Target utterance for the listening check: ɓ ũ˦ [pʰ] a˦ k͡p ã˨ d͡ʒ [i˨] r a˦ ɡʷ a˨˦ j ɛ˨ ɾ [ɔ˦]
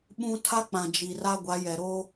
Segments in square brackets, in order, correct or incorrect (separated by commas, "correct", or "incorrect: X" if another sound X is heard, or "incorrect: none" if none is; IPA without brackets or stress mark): incorrect: tʰ, correct, incorrect: o˦